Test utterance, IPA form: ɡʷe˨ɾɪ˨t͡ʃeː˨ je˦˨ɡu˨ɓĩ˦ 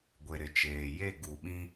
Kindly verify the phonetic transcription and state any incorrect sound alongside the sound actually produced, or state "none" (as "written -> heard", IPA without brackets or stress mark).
none